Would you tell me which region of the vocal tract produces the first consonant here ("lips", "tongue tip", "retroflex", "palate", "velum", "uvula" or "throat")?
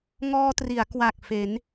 velum